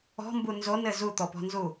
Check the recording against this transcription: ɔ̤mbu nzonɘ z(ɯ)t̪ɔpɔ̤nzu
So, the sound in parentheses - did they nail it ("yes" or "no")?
no